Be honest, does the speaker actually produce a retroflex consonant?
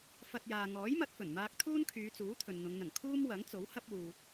no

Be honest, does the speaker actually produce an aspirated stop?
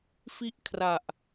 yes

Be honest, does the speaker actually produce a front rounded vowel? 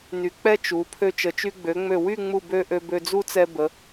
yes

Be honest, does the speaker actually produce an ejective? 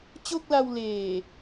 no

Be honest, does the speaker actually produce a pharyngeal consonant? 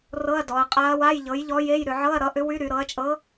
yes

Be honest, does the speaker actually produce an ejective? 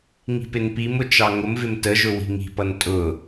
yes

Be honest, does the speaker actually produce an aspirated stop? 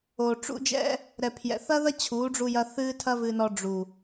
yes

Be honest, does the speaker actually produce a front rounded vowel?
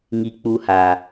no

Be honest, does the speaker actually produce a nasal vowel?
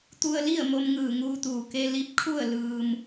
no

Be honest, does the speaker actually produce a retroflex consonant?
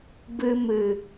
no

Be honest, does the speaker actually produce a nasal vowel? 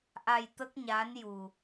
no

